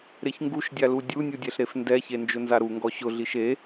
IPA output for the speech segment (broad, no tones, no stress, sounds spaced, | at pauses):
ɾ e ç ŋ ɡ u ʃ dʲ a l u dʲ u nʲ u dʲ ɛ ɬ ɾ e f n d ɛ ç e n d͡ʒ ʊ n z a ɾ u ŋ ɡ ɔ ɕ ʊ ɮ i ʃ e